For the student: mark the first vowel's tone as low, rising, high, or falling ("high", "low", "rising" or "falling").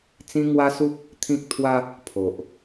high